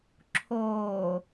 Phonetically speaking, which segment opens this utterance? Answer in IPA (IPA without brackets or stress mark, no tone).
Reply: ǁʰ